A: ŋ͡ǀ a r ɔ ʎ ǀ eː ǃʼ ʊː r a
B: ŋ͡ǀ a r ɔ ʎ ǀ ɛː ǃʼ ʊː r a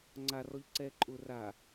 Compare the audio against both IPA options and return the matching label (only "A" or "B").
B